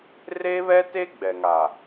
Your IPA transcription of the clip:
r e˦ β ɛ˦ t e˦ ɡ͡b ɛ˨ ŋ a˨

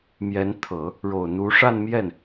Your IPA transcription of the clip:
m j ɛ˧˥ n t̪ʰ ɤ˨˩˦ | ɻ o˨˩ ʊ̯ n̪ u˧˥ ʂ a˥˧ n m j ɛ˥˩ n

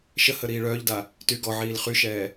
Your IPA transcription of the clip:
ʃ ə h ə ɾ iː ɭ œː ʎ d a | t y ɡ ɔ ʕ iː l χ y ʃ ɛː

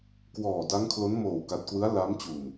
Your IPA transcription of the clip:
k w ɔː˨˩ d a˦˥ ŋ kʰ l o˦˥ n m oː˨˩ w k a˨˩ t̚ k w ɯ˦˥ a̯ l a˦˥ m t͡ɕ u˨˩ n

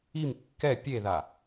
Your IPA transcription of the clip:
i m kː ɛ pʲ e ð a

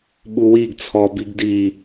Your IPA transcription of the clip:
ɓ u w i ɡ t͡sʰ ɔ b i ɡ d i

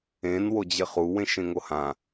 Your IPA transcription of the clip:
ẽ n w o d͡ʑ ɪ χ u w ẽ ʃ ẽ ŋ o h ã

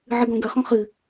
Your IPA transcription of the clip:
ʕ ɨ ɡ ɔ̃ ɡ ɐ χ ɔ̃ χ ɨ

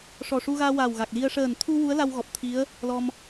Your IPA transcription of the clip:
ʂ ɔ˨˩ ʂ u˧ ɣ aː˧ w aː˨˩ w ɣ a˨˩ k̚ l i˧ ə̯ ʂ əː˨˩ n t̪ʰ u˧ w u˧˥ ə̯ l a˧ w ɣ ɔ˨˩ p̚ t̪ʰ i˧˥ ə̯ | l ɔ˧ m

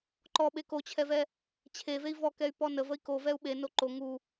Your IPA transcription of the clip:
ǃ ɔ ɓ e k o t͡ɕʰ ɛ v ɛ | t͡ɕʰ e v e i̯ v ɔ k ɛ y̯ p ɔ n ə v ə i̯ k o v ɛ u̯ ɓ e n o ǃ o ŋ u

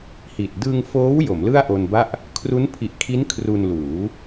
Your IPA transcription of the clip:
h i˨˩ t̚ d ɯ˧ ŋ f oː˦˥ w j o˩˦ m l ɯ˥˩ a̯ ʔ o˧ n b a˥˩ ʔ | kʰ r u˦˥ n pʰ i˨˩ ʔ kʰ i˦˥ n kʰ r u˧ n l uː˩˦

